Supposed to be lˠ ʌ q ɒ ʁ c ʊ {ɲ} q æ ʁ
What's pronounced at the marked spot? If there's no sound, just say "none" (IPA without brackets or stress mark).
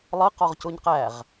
ɲ